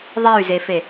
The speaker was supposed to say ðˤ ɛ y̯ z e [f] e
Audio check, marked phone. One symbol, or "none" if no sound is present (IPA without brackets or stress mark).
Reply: f